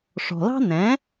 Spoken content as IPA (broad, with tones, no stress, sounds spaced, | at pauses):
ʂ ɔ̤˩ l ɑ̤˥ n ɛ̃˩˥